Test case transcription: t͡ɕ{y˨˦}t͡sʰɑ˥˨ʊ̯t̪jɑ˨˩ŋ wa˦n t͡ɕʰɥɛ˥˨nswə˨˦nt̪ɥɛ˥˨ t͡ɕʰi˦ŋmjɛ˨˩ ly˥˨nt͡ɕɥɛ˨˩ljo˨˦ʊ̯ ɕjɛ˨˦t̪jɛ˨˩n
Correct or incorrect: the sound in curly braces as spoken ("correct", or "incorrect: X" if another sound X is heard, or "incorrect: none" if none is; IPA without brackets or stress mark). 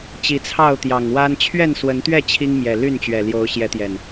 incorrect: i˨˦